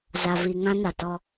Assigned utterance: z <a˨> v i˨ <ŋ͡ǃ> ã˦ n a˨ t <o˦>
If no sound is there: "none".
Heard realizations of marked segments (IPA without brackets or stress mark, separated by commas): a˨, ŋ, ɔ˦